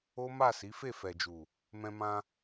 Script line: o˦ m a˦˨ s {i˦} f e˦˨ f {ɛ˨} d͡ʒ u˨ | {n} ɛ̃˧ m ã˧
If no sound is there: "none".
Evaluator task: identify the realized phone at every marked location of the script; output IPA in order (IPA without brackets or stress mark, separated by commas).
i˨˦, ɛ˨, m